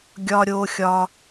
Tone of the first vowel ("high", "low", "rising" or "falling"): high